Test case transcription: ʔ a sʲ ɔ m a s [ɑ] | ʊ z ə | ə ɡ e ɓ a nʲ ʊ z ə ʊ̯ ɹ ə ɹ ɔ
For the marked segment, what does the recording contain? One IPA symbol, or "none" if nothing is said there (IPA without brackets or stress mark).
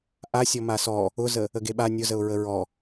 ɔ